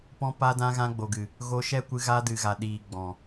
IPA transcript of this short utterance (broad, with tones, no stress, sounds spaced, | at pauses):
p ɔ̃˧ p a˧ d ã˧ ɣ ã˧ ɡ͡b o˨ ɡ ɨ˨ | ɣ o˧ ʃ ɛ˦˨ kʷ ɨ˧ ɣ a˧ d ɨ˨ ɣ a˨ ɗ iː˨ ɡ͡b ɔ̃˨